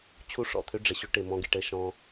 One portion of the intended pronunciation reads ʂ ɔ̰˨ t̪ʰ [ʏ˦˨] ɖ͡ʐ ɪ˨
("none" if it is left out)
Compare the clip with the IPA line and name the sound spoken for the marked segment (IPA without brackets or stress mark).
ʏ˦